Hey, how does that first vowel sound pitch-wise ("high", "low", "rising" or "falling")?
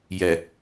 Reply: low